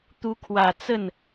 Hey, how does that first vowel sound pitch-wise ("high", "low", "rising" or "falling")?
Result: rising